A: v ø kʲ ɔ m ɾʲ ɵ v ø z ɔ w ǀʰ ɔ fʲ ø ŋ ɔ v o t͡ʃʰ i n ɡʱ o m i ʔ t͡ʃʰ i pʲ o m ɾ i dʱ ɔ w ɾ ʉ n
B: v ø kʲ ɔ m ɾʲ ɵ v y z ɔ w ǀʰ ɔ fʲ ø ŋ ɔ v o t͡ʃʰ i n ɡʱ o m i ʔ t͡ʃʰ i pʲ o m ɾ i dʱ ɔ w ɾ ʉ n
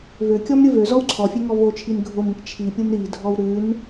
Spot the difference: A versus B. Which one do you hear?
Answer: A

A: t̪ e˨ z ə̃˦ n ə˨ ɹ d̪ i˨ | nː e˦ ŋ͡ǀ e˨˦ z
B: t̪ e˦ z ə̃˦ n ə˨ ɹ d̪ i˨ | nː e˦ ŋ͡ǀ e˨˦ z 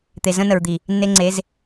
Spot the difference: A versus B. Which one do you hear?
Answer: A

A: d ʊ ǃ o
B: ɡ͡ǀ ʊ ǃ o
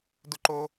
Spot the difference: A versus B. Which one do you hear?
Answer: A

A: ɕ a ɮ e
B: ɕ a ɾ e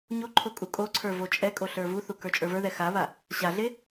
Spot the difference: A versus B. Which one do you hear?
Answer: A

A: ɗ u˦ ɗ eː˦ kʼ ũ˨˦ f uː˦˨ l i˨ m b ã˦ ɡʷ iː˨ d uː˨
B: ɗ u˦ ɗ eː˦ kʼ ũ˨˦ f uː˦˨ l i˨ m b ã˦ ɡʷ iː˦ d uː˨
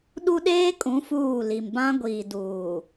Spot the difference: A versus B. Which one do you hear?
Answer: A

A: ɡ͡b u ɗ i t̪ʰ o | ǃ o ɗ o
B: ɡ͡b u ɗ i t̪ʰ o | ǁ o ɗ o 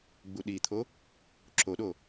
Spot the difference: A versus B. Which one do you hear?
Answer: B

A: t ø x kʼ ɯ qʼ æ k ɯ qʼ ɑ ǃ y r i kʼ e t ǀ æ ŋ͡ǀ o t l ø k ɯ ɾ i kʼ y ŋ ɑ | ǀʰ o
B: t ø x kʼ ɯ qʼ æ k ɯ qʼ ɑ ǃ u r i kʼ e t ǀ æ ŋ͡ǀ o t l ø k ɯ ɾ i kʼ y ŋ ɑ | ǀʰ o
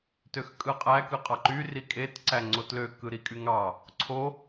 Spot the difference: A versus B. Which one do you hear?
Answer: A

